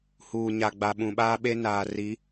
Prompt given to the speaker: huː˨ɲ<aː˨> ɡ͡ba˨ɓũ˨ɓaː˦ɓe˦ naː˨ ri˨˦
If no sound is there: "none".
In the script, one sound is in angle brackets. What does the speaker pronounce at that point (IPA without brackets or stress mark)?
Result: a˨